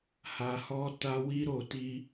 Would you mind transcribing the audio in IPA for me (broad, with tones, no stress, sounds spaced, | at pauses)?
h a˧ h ɔ˦ t a˦ w i˦ ɾ o˦˨ t i˧